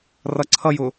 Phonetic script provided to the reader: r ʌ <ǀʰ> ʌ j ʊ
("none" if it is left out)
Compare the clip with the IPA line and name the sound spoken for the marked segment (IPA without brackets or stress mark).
ǀʰ